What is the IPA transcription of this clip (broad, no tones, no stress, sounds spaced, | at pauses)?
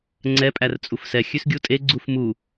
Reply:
ŋ͡ǀ ɛ pʼ æ r t͡sʼ u f s ɛ xʲ ʉ s ɡʲ u tʼ e ɡ͡ǀ u f m u